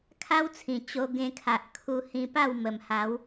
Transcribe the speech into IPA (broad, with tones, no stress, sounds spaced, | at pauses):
kʰ a˦ w t͡sʰ ĩ˨˩ t͡ɕ o˧ ɡ ẽ˧ kʰ a˨ ʔ kʰ u˧ h ĩ˧ p a˥˧ w m ə˨˩ m h a˨˦ w